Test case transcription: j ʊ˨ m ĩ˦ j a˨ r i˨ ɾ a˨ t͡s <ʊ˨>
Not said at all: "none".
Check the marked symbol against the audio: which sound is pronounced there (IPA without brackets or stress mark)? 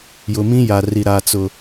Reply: ʊ˨